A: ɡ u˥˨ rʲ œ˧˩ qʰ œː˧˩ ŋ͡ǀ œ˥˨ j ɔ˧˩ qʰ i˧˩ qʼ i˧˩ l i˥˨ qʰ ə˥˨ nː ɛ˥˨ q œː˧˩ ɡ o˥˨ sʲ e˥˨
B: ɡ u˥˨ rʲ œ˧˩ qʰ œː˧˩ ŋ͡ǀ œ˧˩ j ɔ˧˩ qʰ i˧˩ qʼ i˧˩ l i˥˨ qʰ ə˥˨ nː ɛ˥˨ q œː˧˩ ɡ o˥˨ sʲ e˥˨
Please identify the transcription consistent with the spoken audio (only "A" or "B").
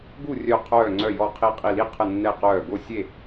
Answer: B